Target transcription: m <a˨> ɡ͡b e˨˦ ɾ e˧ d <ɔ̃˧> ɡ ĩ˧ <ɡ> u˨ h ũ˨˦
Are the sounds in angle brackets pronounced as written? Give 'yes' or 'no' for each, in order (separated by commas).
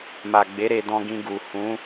yes, yes, yes